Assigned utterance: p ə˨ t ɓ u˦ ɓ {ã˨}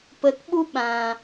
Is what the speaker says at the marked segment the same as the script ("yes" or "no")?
yes